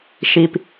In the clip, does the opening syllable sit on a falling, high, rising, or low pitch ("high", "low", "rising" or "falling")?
low